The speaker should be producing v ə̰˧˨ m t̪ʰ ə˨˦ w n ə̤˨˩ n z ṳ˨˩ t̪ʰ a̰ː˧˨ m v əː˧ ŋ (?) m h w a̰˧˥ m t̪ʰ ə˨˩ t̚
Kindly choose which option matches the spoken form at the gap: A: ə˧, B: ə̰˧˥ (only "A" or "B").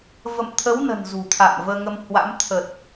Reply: A